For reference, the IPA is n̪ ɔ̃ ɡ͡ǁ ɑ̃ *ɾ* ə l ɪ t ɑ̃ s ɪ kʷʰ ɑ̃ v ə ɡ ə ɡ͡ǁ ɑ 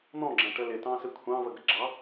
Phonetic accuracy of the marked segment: incorrect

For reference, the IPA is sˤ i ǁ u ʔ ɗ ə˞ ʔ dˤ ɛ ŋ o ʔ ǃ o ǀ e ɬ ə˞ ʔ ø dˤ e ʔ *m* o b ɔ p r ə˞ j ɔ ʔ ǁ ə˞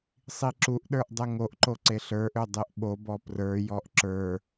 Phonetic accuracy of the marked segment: incorrect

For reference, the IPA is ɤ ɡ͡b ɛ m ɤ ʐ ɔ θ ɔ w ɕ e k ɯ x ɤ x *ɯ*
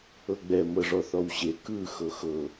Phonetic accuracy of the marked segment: incorrect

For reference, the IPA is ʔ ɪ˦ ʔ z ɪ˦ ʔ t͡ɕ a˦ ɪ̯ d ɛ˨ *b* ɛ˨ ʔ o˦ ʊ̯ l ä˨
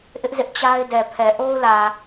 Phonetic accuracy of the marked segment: incorrect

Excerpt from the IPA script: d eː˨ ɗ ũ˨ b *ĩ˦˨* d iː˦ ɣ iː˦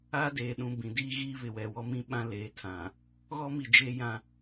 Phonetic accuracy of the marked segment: incorrect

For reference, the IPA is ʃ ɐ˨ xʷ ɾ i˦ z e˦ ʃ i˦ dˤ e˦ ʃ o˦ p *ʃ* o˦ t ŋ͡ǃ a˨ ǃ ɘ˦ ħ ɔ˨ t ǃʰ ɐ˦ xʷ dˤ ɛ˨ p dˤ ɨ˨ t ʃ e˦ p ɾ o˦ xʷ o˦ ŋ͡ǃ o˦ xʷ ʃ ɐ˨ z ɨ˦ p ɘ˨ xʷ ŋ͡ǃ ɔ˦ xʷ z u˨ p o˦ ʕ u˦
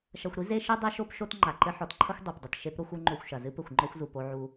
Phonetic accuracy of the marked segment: correct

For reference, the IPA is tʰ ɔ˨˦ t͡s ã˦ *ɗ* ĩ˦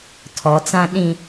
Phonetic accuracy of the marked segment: correct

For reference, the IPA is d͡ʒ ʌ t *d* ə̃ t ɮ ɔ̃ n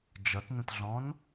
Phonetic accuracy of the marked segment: incorrect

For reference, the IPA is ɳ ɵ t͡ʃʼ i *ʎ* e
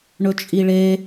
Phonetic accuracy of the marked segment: incorrect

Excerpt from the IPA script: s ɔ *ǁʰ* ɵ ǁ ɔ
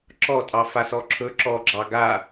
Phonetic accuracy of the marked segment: correct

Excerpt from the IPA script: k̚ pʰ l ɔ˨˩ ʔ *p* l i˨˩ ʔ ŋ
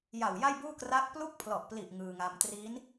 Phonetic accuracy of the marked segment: correct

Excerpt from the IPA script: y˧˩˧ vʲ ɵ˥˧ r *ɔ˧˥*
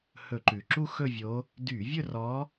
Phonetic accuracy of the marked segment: correct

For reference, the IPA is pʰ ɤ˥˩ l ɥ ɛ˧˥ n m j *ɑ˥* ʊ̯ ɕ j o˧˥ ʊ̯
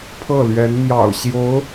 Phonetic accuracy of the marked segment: incorrect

